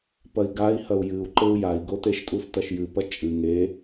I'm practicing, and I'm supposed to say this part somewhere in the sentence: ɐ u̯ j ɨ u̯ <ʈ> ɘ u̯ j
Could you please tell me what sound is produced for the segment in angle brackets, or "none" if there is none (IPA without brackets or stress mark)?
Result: ǃ